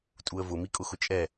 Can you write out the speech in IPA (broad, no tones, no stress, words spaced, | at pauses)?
tʼuə̯vʊ mikʼʊxʊt͡ʃʼɛ